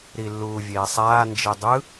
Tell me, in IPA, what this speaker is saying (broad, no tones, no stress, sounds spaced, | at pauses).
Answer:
ɾ i lː uː vʲ eː sˤ aː n d͡ʒ e dˤ ɯ